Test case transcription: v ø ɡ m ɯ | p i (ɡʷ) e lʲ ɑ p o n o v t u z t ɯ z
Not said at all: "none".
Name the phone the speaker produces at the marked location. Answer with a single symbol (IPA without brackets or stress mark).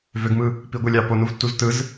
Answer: ɡʷ